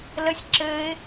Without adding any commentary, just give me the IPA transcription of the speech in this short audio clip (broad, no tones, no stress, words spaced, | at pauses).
ləsʲ ǁɘːɪ̯